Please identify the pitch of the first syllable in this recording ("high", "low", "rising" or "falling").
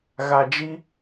low